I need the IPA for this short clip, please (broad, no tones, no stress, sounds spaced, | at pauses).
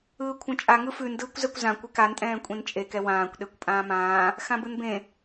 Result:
ɯː kʷʰ ɐ̃ t͡ʃʼ a ŋ ɯ f ʉ n d ɯː kʷ z ɛ kʷ z ã kʷ ɛ k a n tʼ ɛ̃ː kʷʼ ẽ n t͡ʃʼ e k ɛ w ãː kʷ ɗ e kʷ pʼ ãː m ãː | x ã b ɯ n b ẽ